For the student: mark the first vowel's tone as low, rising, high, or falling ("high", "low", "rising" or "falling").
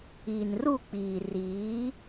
low